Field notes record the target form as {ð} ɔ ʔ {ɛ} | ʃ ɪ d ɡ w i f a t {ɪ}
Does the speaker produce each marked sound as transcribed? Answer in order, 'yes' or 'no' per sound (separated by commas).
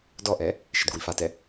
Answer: no, yes, no